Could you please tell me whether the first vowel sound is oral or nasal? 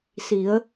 oral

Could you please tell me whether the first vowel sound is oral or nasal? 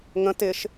nasal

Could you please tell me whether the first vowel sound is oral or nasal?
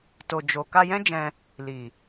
oral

